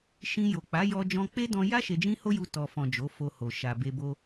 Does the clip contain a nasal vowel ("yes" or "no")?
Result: yes